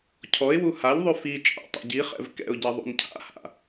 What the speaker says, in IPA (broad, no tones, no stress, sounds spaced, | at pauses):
cʰ ɔ ɪ̯ w u h a ʎ ðˤ ʉ f i t͡ʃʼ a̰ tˤ ɛ̰ ɟ i χ ɛ̰ v k ɛ̰ ʊ̯ ɟ ɛ ðˤ ṵ n cʰ a̰ h a̰